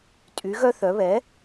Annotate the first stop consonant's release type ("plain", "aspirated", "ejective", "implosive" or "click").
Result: ejective